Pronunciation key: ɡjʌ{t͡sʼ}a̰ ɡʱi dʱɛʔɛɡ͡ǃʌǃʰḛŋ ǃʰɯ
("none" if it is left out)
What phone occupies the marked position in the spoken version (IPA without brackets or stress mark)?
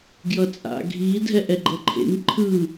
t͡sʼ